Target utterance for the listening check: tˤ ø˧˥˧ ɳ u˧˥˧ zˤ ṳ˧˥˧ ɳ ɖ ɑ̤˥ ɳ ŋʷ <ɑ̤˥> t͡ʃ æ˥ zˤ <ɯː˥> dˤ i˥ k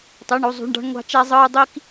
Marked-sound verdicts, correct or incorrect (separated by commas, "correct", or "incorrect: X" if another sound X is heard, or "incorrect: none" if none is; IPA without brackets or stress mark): correct, correct